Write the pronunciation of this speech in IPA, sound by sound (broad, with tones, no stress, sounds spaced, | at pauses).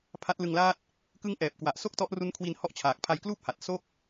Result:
pʰ a˦˥ t̚ l ɯ˧ ŋ l aː˥˩ t̚ | k ɯ˦˥ ŋ ʔ ɛː˨˩ p̚ k w a˨˩ ʔ s o˥˩ k̚ t ɔ˦˥ ʔ r u˦˥ n kʰ w i˧ n h ɔ˥˩ ʔ t͡ɕʰ aː˨˩ k̚ pʰ a˧ j k l uː˥˩ p̚ h a˨˩ t̚ s o˥˩ k̚